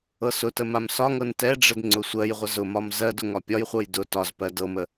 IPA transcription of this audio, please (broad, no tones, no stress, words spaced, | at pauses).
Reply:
ɤsʊtə mamsɒŋɤn tɛɖ͡ʐəd ŋ͡ǀʊsʷɜjʁʷə zʊmɒm zɜd ʊŋɒpʲɒjχʷɤj dʊ tɒzpɜ dɤmə